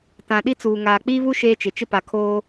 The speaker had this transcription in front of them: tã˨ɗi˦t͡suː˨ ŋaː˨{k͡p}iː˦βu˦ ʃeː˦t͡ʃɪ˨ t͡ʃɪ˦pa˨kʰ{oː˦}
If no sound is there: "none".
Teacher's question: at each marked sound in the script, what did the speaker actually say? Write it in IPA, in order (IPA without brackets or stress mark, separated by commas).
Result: k͡p, oː˦